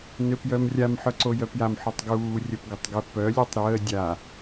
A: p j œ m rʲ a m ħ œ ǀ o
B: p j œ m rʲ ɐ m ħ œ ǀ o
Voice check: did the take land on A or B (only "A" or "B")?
A